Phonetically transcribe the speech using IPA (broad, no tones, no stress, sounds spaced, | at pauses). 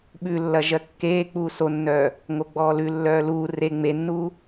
ɓ ʉ lː ɐ ʒ ɜ kː eː k͡p uː s o nː œː | ŋ o ɡ͡b ɔː l ʉ lː œː l uː r e ŋ͡m e nː uː